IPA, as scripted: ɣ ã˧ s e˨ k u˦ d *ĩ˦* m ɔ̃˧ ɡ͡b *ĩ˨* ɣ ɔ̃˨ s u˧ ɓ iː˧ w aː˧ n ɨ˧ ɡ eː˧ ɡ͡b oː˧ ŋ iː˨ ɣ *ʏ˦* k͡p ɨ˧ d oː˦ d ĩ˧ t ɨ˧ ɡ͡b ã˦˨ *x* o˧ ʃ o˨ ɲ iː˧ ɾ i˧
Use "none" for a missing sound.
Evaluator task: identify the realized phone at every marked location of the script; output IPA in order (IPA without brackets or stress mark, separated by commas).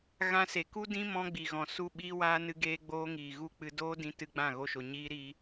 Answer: ĩ˦, i˨, u˦, ɣ